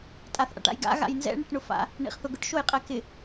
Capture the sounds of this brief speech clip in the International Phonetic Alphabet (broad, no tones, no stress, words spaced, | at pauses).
tʼaθʔa̰ʈa̰jɡa̰ ɣa̰jnzɛ̰ ɳɪʈɳʊfa̰ | ɳḭχθʊɡʊʈ ʃojqʼɛkɪ